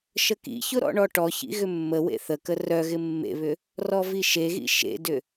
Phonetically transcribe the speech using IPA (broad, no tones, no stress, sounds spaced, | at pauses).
ʃ ə k ḭ ç ʊ ɾ ɔ̰ ɳ ɔ ʈ ɔ ç ḭ ɣ ʏ mː ə w ḛ θ ə k ə r œ ɣ ɪ mː ḛ β ʏ | r ɔ v i ʃ e ɣ ḭ ʃ ḛ d ʏ